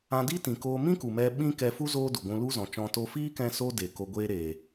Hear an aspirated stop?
no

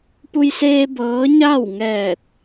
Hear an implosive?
no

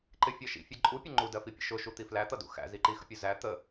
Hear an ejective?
yes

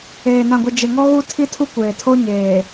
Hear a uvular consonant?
no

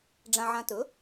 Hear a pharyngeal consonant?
yes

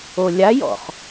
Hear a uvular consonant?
yes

